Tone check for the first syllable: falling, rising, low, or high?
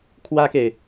high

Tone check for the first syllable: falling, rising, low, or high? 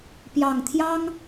low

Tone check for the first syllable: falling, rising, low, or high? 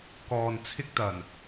low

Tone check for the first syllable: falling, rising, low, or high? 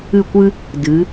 falling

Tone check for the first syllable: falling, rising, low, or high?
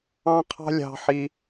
high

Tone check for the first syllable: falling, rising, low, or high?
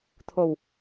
low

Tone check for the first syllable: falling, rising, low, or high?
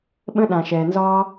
high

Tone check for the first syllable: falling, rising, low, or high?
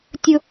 high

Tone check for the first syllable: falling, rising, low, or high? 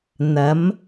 rising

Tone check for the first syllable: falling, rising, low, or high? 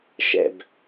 falling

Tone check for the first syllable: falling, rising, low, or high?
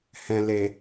low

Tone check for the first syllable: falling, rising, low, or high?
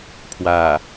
low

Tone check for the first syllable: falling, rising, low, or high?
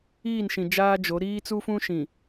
falling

